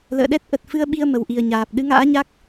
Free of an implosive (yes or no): no